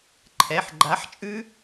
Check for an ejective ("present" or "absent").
present